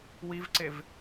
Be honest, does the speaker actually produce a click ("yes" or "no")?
yes